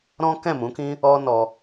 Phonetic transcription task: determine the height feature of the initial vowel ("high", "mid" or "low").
mid